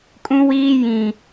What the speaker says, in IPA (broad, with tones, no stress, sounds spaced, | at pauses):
kʼ ũ˦ w iː˦ j ĩ˨